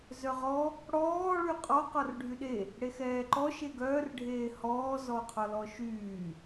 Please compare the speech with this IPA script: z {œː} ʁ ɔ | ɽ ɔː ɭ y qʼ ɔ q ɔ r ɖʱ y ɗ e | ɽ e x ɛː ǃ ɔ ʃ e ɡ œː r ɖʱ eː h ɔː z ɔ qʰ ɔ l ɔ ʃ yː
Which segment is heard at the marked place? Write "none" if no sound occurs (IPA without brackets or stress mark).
œ